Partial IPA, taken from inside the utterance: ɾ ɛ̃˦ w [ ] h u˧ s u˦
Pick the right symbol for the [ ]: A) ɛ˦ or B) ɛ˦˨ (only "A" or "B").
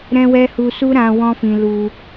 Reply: A